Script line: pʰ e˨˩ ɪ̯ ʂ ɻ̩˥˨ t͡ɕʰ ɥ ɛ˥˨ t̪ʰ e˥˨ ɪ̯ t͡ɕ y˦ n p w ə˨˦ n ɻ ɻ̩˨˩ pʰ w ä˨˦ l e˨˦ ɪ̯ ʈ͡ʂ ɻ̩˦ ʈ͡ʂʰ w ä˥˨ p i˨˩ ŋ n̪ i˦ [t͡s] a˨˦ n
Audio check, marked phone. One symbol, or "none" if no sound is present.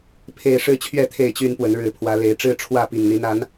n̪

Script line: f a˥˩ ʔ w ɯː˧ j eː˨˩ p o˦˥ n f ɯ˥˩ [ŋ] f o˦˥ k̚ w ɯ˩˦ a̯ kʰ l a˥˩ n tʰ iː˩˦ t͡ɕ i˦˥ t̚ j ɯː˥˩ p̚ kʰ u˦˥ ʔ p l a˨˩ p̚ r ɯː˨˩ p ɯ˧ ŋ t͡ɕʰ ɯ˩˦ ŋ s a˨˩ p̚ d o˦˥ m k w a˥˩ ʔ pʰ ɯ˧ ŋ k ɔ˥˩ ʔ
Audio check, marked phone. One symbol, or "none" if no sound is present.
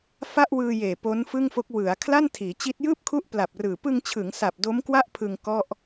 ŋ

